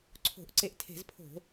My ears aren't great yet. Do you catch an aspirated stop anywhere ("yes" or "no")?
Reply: yes